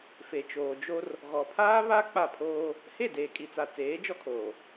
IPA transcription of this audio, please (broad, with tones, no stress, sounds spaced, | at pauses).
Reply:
f e˨ t͡ʃ oː˨ d͡ʒ o˦ r | ɣ ɔ˨ pʰ aː˦ β a˦ k͡p a˦˨ pʰ oː˦ | h e˦˨ d eː˨ kʼ i˨ t͡s a˨ t͡s eː˨˦ d͡ʒ ɔ˦ kʰ oː˨